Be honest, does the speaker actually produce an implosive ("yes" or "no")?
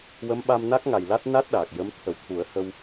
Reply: yes